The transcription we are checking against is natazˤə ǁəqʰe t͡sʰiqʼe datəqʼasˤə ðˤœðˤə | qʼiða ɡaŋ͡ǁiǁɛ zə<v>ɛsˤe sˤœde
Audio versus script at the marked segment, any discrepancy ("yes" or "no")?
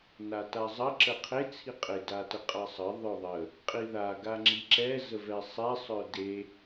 no